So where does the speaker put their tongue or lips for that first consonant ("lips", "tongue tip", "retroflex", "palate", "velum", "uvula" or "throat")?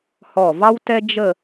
throat